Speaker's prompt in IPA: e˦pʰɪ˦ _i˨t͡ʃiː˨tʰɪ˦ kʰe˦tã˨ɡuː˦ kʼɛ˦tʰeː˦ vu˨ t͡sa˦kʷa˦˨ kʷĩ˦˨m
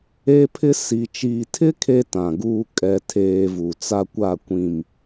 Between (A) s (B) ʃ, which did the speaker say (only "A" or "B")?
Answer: A